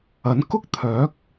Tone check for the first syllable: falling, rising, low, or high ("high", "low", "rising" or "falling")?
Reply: rising